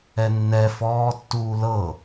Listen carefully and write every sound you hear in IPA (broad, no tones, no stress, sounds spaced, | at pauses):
ɛ nː ɛ f ɔː tː uː l ɤ